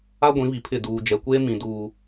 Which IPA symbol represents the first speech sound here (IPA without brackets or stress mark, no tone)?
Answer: a